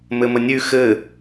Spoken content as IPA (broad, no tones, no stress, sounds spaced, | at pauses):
m ɘ m ə nʲ ʉ x ɘ